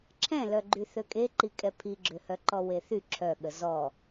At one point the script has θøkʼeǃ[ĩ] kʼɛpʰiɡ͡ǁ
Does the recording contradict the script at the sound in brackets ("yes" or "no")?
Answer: yes